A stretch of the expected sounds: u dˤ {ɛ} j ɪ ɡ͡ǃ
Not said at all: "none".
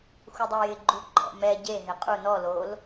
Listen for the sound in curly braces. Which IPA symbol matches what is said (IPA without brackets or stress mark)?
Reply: ɛ